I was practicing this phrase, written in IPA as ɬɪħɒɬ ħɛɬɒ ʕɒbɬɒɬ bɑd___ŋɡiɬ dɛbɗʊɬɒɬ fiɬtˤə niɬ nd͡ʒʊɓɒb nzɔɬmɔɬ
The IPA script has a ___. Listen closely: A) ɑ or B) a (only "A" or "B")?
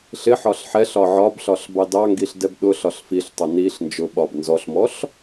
A